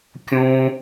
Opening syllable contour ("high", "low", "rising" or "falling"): high